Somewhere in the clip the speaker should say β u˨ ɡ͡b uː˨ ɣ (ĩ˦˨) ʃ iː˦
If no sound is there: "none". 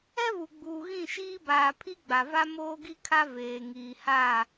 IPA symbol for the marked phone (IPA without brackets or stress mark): ĩ˦˨